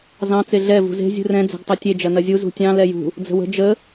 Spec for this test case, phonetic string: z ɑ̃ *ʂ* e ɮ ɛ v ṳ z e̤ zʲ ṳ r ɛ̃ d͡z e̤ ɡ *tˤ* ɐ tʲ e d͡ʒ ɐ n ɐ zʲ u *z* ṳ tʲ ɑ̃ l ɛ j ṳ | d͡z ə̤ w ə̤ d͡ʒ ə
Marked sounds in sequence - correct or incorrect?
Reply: incorrect, correct, correct

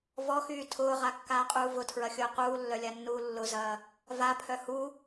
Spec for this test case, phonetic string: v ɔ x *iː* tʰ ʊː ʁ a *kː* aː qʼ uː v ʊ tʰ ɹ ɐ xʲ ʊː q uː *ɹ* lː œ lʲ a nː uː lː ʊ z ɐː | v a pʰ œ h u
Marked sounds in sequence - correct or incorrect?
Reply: incorrect, correct, incorrect

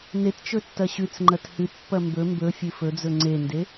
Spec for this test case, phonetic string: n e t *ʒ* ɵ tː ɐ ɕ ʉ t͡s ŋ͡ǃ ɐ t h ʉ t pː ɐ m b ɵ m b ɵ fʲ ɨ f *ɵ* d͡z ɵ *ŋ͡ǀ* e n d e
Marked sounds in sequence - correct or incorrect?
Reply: incorrect, correct, correct

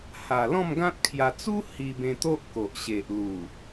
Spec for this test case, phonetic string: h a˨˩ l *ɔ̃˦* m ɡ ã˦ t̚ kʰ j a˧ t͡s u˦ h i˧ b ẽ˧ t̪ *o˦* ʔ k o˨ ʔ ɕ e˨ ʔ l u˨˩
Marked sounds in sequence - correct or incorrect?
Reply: incorrect, correct

